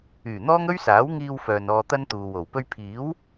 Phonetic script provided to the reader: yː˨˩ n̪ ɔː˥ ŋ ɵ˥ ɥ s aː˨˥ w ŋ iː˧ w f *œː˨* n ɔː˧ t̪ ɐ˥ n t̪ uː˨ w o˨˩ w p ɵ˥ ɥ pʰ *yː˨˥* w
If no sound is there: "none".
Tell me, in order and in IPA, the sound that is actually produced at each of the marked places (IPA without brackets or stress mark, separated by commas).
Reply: œː˨, iː˨˥